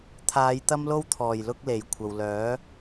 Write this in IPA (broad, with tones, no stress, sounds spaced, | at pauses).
t̪ʰ aː˨˧ j t̪ ɐ˥ m l o˥ w t̪ʰ ɔː˨˩ j l ʊ˥ k̚ l e˨˩ j kʷʰ ɐ˨ w l œː˨˥